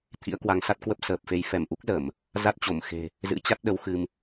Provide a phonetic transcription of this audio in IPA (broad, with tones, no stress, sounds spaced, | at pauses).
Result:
t̪ʰ ḭ˧˥ ə̯ k w a˨˦ ŋ s a˦˥ t̚ k w ə˦˥ p̚ s əː˨˩ p̚ f e˨˦ j f ɛ˧˩ m ʔ u˦˥ k̚ z ə˧˩˨ m | z a˦˥ t̚ t͡ɕ o˧˩ m x e̤˨˩ | z ɨ̰˧˥ t͡ɕ a˦˥ t̚ ɗ ə˨˦ w x ɨ˧ m